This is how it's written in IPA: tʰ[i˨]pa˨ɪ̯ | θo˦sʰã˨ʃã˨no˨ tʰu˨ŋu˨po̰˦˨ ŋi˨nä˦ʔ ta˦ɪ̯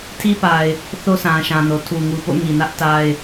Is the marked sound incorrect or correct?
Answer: incorrect